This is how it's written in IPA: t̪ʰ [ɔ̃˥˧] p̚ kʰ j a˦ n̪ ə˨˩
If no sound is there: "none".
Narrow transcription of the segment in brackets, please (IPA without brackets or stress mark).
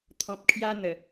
ɔ̃˨